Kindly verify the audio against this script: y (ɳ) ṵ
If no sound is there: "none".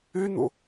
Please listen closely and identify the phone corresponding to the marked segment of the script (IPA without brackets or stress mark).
n̪